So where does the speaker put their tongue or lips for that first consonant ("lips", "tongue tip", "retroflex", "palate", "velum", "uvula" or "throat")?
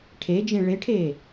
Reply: retroflex